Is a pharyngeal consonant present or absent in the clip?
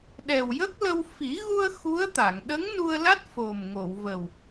absent